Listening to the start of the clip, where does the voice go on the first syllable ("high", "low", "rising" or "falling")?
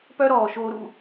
high